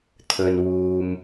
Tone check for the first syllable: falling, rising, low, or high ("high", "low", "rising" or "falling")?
low